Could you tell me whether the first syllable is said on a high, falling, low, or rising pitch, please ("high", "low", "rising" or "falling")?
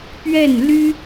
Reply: falling